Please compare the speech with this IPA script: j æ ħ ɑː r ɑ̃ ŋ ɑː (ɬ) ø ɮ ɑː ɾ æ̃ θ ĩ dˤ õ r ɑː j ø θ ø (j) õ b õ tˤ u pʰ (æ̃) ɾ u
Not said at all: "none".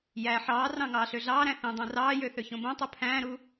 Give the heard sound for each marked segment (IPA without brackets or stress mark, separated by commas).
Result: ɬ, ç, æ̃ː